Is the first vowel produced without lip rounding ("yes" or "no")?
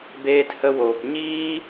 yes